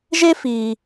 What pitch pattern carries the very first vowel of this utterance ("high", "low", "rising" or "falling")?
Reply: high